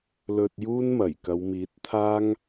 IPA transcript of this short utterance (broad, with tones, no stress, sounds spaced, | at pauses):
l ɵ˧ t̚ j uː˥ n m ɐ˨˩ j k ɐ˨˧ w m iː˨˥ t̚ t̪ʰ aː˥ ŋ